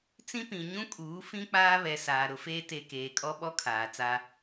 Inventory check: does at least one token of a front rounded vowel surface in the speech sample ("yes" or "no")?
no